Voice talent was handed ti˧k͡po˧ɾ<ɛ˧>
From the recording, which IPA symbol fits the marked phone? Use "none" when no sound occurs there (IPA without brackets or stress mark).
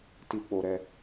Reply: ɛ˧